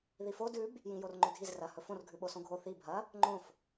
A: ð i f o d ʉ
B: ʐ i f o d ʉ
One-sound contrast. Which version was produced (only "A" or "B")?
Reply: A